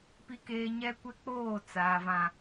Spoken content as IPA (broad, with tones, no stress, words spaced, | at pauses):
pi˦keː˦ ɲɛ˦kʷɛ˦k͡poː˦˨ t͡saː˨ vã˨